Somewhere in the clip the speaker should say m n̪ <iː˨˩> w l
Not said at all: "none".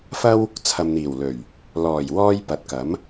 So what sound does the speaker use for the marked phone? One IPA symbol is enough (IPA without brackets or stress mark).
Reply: iː˨˩